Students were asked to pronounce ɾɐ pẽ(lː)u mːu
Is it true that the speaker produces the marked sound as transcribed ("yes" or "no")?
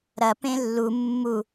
yes